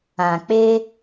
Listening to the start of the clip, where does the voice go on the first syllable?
low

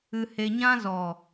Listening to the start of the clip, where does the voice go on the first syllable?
low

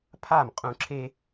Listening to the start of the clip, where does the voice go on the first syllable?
falling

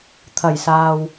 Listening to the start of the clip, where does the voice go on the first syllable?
low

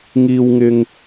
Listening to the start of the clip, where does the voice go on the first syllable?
low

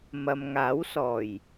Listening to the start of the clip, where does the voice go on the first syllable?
low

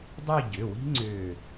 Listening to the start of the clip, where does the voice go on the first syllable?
falling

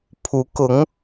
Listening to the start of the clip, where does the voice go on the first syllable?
rising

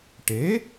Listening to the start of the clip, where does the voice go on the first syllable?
rising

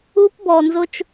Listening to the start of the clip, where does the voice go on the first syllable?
high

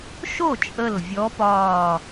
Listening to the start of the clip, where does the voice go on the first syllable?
falling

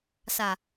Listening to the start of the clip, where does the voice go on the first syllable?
low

